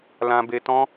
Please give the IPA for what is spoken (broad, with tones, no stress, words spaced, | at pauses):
lã˧be˧tɔ̃˦